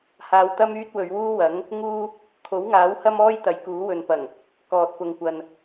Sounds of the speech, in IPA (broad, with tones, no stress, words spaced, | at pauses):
haː˨wt̪ɐ˥m yː˥t̚wɵ˨˧ɥ wuː˥wɐ˨˥ŋ | ŋuː˥ | kʰo˨˥wŋaː˨˥whɐ˥mɔː˥j t̪ɐ˨˥jkuː˨˥wɵ˨npɐ˨˩ŋ | kɔː˨t̚pʊ˨ŋkʷɐ˨n